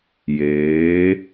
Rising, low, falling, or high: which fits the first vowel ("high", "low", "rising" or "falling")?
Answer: rising